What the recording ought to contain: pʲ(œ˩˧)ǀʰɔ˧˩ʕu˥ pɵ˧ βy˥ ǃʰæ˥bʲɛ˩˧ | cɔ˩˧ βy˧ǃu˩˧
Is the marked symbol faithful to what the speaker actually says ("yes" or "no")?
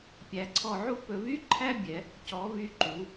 no